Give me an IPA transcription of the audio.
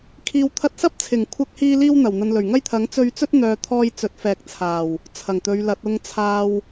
kʰ iː˨ w t̪ʰ ɐ˧ t̚ s ɐ˥ p̚ t͡sʰ ɪ˨˩ ŋ kʷʰ ɐ˧ k̚ h iː˧ l iː˥ w n̪ ɐ˨˩ w n̪ ɐ˨ n l ɵ˨˩ ɥ ŋ ɐ˥ j t̪ʰ ɐ˨˥ ŋ t͡s ɵ˧ ɥ t͡s ɵ˥ t̚ n̪ œː˨ t̪ʰ ɔː˧ j t͡s ɵ˨˥ t̚ f ɛː˨ k̚ t͡sʰ aː˨˩ w | t͡sʰ ɐ˨˩ ŋ t̪ ɵ˨˧ ɥ l ɐ˨˥ t̚ ʊ˨ ŋ t͡sʰ aː˨ w

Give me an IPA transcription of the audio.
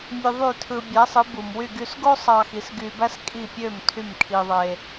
mʲ ø˧ ðˤ y˥˩ tʰ ɯ˧ bʲ æ˩˥ sˤ ɯ˩˥ b u˩ m w y˥˩ ɡ y˧ s ɡ o˥ sˤ ɑ˧ x i˩˥ s ɡ y˧ b æ˥ s kʼ i˥˩ pʲ ø˥˩ m tʰ y˥˩ m kʰ i˧ ðˤ e˧

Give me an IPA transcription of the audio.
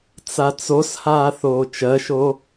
t͡s a t͡s o s h aː θ oː t͡ʃ ɜ ʃ o

